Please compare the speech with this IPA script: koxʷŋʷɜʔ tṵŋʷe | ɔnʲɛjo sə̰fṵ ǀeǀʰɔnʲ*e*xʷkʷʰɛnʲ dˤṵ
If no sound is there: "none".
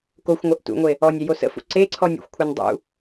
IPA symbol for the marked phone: ḛ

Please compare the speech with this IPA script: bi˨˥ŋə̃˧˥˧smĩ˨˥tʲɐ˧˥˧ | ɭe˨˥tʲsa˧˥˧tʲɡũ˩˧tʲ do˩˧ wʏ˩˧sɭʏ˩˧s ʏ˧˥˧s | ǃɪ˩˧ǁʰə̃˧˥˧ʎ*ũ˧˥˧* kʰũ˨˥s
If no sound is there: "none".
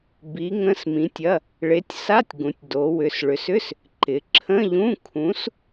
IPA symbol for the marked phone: ũ˧˥˧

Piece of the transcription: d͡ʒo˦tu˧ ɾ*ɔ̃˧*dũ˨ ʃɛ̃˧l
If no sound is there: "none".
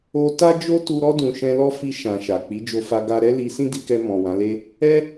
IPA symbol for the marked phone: ɔ˧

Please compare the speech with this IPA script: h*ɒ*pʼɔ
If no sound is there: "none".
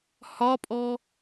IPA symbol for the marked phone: ɒ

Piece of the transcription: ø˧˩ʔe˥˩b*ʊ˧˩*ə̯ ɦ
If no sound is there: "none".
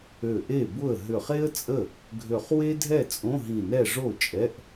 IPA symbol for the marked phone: ʊ˥˩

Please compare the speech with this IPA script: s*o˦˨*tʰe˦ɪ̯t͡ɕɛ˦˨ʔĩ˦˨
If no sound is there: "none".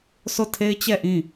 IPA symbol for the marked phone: o˦˨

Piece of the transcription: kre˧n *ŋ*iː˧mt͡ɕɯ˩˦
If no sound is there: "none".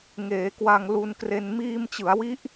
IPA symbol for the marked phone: m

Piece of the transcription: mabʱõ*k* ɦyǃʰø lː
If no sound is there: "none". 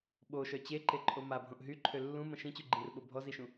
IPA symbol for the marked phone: ʔ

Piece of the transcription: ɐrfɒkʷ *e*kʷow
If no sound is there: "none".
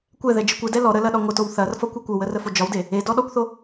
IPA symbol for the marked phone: e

